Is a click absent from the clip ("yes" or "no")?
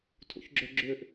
no